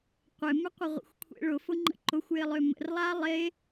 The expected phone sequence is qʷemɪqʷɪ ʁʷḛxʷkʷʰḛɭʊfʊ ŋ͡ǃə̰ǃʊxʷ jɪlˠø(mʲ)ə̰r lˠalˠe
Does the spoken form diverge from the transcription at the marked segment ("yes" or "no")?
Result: yes